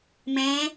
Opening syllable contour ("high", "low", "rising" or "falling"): rising